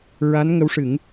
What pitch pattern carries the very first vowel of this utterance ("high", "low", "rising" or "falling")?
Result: rising